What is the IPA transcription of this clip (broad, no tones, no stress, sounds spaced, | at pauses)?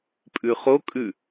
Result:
pʼ ʉ χ o kʼ ʉ